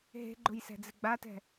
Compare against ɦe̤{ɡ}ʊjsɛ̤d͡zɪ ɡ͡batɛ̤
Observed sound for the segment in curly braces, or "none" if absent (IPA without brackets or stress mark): ɡ͡ǃ